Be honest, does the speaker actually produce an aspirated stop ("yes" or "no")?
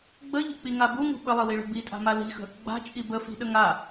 no